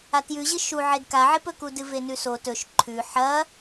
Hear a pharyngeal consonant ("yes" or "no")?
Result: yes